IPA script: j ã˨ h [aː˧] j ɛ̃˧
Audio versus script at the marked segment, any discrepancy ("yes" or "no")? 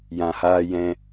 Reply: no